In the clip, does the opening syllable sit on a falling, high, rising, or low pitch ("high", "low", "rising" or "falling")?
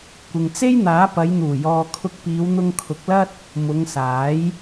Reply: low